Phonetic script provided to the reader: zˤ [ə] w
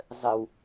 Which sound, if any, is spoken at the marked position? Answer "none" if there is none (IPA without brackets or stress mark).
ə